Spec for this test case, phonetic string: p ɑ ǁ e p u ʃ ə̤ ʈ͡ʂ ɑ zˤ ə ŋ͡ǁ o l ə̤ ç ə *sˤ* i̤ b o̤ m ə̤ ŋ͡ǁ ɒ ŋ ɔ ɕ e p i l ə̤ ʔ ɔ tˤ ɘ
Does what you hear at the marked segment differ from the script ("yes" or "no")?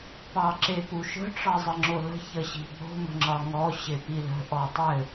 yes